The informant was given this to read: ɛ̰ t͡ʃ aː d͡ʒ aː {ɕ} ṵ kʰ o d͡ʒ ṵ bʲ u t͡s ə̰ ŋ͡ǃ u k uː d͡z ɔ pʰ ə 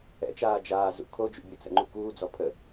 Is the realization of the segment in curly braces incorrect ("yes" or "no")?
yes